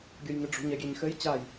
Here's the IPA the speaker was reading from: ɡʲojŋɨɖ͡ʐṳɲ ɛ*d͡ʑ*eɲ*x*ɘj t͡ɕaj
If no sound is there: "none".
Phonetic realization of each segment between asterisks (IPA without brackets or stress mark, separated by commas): ɡʲ, x